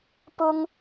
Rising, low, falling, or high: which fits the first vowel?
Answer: high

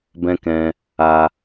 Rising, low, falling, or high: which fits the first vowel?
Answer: high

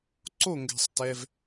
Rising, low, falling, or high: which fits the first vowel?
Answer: falling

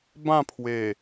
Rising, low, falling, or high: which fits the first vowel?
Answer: falling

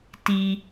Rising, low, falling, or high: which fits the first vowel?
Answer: low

